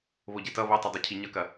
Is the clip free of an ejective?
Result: yes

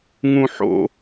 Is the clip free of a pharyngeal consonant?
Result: no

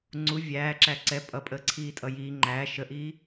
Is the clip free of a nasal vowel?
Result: yes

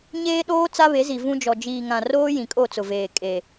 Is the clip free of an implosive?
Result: no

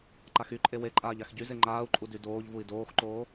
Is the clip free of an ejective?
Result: no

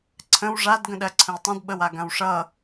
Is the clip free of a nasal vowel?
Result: no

